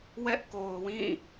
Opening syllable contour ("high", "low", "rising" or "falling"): high